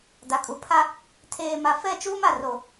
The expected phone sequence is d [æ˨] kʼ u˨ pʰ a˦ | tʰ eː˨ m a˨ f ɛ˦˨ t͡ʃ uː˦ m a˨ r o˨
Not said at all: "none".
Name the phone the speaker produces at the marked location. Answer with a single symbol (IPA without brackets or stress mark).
a˨